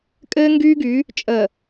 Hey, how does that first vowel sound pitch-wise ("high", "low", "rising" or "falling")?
high